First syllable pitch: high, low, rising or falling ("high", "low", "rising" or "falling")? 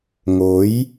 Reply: rising